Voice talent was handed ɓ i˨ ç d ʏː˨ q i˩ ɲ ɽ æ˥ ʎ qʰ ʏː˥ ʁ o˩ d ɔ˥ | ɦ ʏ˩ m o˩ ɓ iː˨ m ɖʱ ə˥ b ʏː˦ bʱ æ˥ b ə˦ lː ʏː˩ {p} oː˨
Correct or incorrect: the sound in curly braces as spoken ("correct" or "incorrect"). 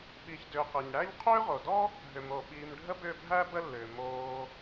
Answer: incorrect